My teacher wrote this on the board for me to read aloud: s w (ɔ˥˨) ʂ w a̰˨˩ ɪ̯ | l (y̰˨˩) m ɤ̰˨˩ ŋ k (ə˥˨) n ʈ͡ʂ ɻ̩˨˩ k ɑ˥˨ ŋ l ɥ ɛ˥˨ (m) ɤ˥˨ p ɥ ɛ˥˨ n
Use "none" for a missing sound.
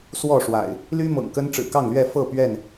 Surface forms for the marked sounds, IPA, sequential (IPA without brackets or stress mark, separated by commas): ɔ˥˨, y˦, ə˦, f